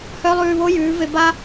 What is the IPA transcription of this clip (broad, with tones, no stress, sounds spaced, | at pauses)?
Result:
h œ˦ lˠ ʉː˧ β o˦ j ʉː˨˦ v e˧ b a˦